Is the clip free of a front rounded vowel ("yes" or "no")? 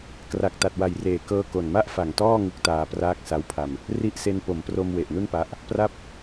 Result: yes